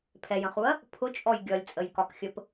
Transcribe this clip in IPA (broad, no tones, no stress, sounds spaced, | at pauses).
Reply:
pʰ ɛ j ə̃ χ u ɐ̯ | pʰ ʊ t͡ʃʼ ɔ j ɡʲ ʌ lʲ t͡sʼ ə j k ɒ k xʲ ə p